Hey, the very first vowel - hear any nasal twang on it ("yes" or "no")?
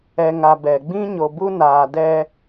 no